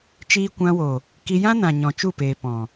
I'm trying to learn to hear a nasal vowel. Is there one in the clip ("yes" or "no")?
yes